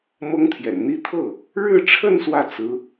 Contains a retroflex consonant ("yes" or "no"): yes